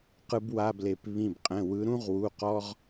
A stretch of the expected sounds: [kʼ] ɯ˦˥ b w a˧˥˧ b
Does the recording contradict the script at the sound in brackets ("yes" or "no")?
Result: yes